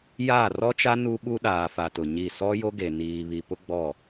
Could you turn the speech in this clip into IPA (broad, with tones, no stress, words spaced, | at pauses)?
jaː˦˨rɔ˦t͡ʃa˦ nu˦ɓu˦ɗaː˨fa˨ tʊ˨ɲi˦˨ sɔ˦jo˦ɡe˨ niː˨βi˨pʊ˦ ɡ͡bɔ˦˨